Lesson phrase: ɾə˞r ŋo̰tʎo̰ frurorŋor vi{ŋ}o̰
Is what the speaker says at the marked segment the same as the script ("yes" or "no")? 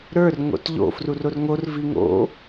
yes